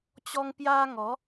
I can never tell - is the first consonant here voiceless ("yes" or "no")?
yes